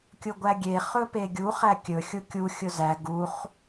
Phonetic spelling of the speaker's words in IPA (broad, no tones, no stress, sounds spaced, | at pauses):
kʲ ʊ ɡʷ æ ɡʲ e χ ɵ p e ɡʲ u χ æ kʲ ɵ xʲ ʊ kʲ u xʲ ʊ z æ ɡ u χ